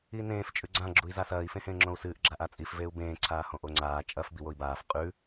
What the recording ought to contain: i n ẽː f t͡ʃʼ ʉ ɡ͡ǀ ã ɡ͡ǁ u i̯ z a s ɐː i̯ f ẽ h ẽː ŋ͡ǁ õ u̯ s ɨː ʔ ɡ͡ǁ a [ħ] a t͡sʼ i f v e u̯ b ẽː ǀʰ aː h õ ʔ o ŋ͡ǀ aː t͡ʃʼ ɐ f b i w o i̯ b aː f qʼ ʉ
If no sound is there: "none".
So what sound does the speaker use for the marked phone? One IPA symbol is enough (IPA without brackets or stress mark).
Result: ʔ